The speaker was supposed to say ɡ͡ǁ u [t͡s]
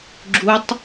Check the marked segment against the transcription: incorrect: tˤ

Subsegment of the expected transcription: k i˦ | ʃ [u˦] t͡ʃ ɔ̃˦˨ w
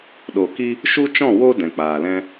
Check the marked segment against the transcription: correct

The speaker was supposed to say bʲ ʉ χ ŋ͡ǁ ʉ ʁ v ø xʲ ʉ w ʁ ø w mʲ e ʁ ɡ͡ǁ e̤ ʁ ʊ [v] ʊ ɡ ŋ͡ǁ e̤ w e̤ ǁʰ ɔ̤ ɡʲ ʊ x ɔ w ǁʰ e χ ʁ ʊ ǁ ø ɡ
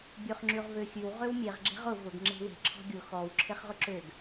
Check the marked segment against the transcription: correct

